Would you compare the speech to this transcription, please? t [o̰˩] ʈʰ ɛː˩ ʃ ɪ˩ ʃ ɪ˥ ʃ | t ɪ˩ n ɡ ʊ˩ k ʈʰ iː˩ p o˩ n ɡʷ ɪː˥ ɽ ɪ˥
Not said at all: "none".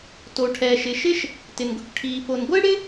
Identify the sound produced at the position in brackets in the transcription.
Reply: o˩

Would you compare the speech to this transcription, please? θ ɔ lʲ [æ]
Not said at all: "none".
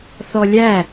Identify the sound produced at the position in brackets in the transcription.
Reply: æ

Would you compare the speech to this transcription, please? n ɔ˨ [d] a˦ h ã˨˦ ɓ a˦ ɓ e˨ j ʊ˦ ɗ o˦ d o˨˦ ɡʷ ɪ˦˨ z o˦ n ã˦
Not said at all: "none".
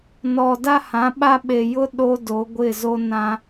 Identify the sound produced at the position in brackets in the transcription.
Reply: d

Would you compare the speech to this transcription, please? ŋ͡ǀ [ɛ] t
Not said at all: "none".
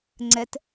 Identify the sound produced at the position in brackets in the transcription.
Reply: ɛ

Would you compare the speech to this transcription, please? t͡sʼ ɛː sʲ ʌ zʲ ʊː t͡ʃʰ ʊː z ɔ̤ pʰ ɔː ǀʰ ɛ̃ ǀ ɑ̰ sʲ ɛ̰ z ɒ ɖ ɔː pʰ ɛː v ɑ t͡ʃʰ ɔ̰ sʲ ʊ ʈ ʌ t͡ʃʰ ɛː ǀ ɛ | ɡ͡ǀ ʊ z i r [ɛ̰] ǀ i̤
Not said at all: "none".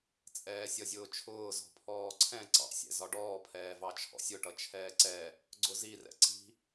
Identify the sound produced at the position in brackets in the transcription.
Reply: ɛ̰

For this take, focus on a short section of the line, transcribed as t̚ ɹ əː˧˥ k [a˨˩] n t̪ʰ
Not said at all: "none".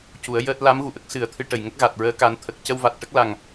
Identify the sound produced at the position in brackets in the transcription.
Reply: a˨˩˦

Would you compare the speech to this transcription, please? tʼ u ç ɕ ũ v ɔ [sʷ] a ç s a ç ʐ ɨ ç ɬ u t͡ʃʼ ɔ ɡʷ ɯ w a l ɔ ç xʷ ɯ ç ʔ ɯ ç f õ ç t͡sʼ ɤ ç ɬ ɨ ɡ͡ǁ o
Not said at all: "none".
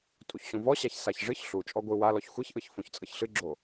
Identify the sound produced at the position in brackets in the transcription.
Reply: ɕ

